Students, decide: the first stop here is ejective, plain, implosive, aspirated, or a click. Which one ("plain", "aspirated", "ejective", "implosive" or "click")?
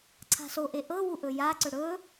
click